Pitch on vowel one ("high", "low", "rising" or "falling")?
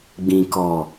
high